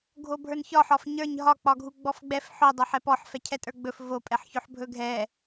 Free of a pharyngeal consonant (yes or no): no